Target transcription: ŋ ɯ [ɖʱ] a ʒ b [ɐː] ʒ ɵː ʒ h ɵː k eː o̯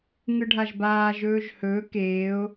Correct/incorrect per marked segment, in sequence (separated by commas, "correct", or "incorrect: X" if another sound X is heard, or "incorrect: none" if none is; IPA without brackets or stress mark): correct, incorrect: aː